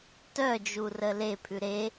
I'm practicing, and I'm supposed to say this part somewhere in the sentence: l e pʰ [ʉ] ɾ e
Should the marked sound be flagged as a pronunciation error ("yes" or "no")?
no